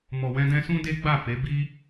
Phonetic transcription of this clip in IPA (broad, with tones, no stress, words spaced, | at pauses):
mɔ˨wɛ̃˧dɛ̃˧sũ˦ de˦ɡ͡ba˦˨fe˨˦ bi˦